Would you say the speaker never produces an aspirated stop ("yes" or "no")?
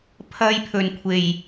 no